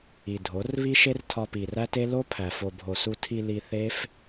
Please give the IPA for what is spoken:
i˨ dʱ o˨˦ r β i˦ ʃ e˦ r tʰ ɒ˧ p i˨ r æ˦ t e˦ l o˦ pʰ æ˨ f o˨ bʱ o˨ s u˧ tʰ i˧ l i˧ θ e˦ f

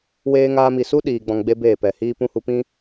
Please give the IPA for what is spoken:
w eː˧ ŋ aː˧ m i˨ s u˦ ɗ iː˨ ɡ͡b ɔ̃˧ ŋ ɡ͡b e˦ b eː˦˨ p ɛ˨ h iː˦ p ũ˧ h u˧ p ĩ˦

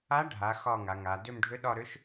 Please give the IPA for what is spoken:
a˧˥ ɖʱ a˩˧ x ɒ˦˨ ŋ a˩˧ ŋ a˩˧ d ʏ˦˨ m ɖʱ ʏ˧˥ ɗ ɒ˦˨ ɾ ʏ˧˥ ʃ

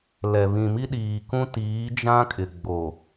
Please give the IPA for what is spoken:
l ɛ˨ β ĩ˨ m i˦ ɗ iː˨ k ũ˦ t iː˨˦ d͡ʒ ã˦ kʼ ɪ˨ ɡ͡b o˨

